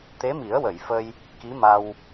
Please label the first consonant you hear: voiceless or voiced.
voiceless